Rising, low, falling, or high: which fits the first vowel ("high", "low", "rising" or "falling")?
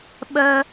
high